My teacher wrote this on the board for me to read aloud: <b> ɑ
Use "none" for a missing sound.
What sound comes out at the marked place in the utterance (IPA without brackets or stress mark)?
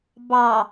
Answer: b